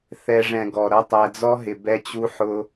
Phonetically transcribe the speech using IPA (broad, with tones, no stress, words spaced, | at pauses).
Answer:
θɛ˧ ʐɛ̃˧ɡɔ˨ ɾʌ˦tˤæ˧d͡zɔ˦ɦɪ˨ bɛ˦t͡ɕu˦ ħʊ˧